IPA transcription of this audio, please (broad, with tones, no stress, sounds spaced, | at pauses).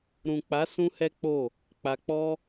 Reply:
ɾ ũ˨ k͡p a˨˦ s ũ˦ h ɛ˦ k͡p o˦˨ | k͡p a˧ k͡p ɔ˦